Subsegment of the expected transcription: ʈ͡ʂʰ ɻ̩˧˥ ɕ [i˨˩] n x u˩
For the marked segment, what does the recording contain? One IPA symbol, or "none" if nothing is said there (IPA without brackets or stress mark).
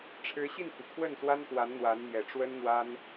i˥˩